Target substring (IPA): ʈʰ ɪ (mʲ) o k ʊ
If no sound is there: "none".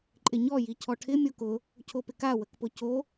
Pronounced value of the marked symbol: mʲ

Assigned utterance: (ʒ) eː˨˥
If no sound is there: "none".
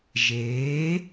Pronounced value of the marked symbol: ʒ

